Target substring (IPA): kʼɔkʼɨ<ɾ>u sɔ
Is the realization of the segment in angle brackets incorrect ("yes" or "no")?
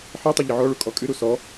no